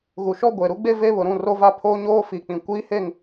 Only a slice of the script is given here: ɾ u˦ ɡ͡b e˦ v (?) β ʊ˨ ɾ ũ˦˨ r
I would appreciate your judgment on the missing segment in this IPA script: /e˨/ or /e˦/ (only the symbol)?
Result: e˦